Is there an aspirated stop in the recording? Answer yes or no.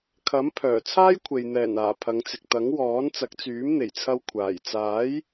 yes